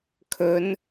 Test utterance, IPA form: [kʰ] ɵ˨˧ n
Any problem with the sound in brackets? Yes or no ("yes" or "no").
no